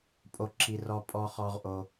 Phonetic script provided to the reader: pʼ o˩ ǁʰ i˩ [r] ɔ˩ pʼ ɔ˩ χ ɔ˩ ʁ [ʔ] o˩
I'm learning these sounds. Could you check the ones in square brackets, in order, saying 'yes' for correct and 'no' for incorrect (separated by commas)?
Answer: yes, yes